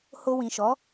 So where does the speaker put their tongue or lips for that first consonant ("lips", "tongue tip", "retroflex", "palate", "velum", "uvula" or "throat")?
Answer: throat